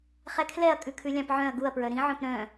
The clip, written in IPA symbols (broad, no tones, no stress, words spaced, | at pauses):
χɛkʰlɛɐ̯ kʼʉkʰʉlʲɑ̃pʕœ̃ɐ̯ ɡuɐ̯pɹœ ɾĩʕœ̃p ɾœ̃